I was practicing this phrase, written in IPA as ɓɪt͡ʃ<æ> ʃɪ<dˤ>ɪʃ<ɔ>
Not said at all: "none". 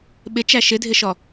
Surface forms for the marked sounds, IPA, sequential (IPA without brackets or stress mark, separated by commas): æ, dʱ, ɔ